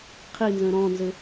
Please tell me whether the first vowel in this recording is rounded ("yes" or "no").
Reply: no